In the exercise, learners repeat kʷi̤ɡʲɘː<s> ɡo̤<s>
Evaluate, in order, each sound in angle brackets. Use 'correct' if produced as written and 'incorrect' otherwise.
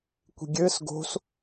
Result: correct, correct

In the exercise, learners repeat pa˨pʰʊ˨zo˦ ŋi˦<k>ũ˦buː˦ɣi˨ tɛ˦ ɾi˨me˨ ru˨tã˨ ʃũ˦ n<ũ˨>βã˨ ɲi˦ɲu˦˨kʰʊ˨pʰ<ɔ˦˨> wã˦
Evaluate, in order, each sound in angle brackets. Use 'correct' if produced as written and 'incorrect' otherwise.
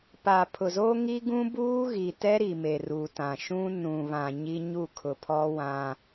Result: incorrect: ɡ, correct, incorrect: ɔ˦

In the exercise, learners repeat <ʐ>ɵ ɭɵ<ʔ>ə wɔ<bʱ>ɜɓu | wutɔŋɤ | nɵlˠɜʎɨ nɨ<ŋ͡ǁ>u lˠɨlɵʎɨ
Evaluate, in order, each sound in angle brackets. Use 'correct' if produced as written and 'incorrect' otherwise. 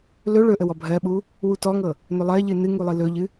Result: incorrect: l, correct, correct, incorrect: ŋ

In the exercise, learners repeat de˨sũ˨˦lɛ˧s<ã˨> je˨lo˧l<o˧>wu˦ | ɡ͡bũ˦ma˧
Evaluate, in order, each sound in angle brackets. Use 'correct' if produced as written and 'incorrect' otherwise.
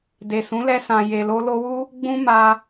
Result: correct, correct

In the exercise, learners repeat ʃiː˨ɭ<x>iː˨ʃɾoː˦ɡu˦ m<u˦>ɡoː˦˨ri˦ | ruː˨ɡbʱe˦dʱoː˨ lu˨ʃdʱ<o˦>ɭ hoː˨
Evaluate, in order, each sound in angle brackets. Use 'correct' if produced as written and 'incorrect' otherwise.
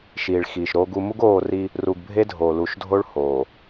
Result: correct, correct, correct

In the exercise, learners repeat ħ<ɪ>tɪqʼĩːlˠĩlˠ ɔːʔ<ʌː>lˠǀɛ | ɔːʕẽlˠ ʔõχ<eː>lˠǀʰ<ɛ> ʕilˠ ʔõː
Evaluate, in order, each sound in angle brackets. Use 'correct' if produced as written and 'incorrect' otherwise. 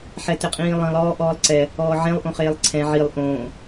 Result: incorrect: ɛ, incorrect: ɔː, correct, incorrect: ɛ̃

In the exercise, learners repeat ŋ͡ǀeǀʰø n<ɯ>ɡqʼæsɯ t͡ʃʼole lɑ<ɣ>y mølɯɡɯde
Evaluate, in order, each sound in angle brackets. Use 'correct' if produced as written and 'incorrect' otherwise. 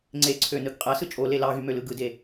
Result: correct, correct

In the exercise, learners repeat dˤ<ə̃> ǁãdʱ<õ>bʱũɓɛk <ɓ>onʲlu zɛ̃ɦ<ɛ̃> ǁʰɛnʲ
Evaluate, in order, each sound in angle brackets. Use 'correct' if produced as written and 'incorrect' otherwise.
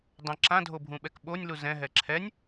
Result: correct, incorrect: o, correct, incorrect: ɛ

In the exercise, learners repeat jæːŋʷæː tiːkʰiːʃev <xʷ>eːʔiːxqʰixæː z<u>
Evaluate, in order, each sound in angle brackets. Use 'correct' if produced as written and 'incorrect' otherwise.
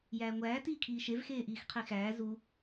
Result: incorrect: x, correct

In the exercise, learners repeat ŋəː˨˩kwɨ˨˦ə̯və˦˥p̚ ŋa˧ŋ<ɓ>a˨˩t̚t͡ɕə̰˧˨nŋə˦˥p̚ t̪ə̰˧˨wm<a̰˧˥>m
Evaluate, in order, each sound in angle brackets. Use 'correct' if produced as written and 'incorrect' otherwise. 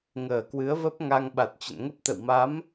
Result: correct, incorrect: a˨˦

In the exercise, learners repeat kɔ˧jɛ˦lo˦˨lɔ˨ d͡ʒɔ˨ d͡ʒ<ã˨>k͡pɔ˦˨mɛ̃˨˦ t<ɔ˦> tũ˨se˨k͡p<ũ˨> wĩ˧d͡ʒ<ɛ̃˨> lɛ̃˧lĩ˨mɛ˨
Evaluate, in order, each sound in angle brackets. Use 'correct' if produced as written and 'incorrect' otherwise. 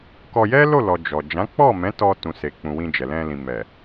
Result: incorrect: ã˨˦, incorrect: ɔ˧, correct, incorrect: ɛ˨

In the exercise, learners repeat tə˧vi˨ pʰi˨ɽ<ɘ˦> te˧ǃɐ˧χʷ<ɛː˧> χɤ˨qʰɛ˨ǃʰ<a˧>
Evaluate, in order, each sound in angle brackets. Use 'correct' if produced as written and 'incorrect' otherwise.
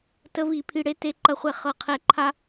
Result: incorrect: e˦, incorrect: ɛ˧, correct

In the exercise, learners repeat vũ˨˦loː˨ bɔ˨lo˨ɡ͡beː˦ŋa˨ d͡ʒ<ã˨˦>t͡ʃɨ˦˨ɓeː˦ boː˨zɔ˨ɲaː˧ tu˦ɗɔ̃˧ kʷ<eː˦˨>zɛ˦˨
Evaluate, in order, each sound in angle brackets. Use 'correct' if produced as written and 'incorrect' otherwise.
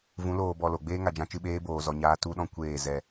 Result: incorrect: ã˧, correct

